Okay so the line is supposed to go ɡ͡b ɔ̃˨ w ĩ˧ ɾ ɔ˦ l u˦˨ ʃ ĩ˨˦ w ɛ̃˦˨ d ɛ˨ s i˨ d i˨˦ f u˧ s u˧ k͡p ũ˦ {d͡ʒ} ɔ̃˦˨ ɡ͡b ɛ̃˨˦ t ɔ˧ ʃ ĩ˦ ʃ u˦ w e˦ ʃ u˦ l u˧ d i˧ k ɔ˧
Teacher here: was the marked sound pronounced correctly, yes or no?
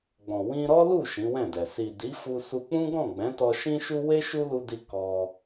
no